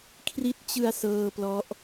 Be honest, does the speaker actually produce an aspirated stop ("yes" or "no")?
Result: yes